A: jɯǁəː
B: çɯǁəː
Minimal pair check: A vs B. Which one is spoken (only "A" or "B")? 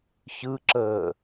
B